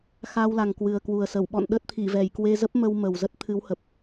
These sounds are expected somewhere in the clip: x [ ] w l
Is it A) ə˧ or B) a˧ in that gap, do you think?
B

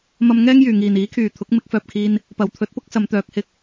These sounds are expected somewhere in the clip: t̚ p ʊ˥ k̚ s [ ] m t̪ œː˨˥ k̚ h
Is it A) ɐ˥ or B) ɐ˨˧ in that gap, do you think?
B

